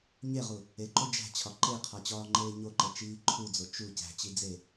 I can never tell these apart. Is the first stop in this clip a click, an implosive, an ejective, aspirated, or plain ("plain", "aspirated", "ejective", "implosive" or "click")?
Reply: click